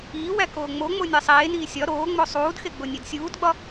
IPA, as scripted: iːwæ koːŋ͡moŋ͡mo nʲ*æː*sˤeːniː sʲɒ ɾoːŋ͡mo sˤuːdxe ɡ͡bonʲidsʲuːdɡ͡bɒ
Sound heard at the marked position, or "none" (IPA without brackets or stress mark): æ